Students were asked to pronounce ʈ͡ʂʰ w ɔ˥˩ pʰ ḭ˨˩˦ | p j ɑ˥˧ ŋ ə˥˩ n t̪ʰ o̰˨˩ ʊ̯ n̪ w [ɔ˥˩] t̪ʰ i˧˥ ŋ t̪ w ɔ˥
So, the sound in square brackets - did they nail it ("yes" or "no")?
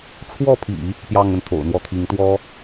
yes